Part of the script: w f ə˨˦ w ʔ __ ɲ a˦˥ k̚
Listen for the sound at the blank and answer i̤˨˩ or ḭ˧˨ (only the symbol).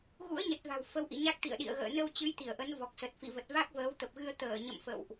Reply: ḭ˧˨